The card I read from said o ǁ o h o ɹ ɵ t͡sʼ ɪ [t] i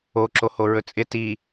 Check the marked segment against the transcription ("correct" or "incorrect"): correct